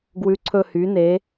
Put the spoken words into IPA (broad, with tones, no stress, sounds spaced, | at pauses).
ɡ w ʉ˩˧ ǀʰ ɵ˨˩ h y˩˧ n e˩˧